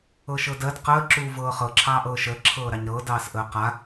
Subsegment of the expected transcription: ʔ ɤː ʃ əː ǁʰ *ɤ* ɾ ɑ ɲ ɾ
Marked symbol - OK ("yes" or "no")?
no